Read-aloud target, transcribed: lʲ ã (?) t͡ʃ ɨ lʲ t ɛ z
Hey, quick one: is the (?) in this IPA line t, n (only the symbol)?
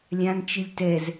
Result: n